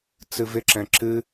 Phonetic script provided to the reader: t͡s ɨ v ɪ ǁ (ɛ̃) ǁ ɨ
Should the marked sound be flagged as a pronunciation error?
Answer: no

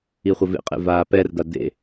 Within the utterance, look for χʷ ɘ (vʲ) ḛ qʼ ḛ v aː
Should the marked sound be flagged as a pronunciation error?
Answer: yes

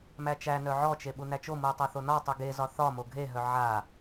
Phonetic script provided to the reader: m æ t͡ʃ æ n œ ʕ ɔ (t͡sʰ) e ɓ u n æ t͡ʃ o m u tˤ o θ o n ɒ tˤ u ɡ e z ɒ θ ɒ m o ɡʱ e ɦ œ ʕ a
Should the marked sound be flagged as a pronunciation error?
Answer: yes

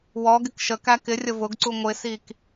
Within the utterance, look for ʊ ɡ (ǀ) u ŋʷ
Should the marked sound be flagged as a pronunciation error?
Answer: no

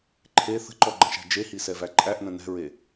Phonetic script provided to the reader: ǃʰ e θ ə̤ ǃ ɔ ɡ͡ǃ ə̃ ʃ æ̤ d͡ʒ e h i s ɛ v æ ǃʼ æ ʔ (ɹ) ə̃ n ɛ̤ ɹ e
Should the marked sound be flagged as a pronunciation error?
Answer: yes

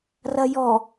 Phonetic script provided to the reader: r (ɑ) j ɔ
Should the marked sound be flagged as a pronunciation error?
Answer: yes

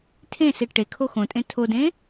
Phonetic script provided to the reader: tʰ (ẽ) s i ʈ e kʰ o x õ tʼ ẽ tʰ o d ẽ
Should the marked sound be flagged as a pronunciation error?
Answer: no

